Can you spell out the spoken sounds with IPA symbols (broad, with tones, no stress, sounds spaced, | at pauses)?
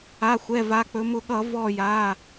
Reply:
a˩˧˩ xʷ ɛ˩˧˩ v a˩˧ k͡p ɵ˩˧ m ʊ˧˩˧ ɠ ʌ˧˩˧ v ɔ˧˩ j a˩˧˩